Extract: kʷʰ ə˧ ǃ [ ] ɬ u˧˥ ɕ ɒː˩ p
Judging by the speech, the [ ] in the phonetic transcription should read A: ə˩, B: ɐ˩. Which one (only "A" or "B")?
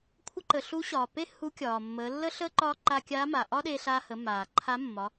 A